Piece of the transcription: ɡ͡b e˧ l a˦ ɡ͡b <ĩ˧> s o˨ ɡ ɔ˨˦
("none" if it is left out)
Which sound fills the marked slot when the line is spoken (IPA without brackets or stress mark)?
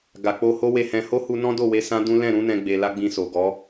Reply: ĩ˧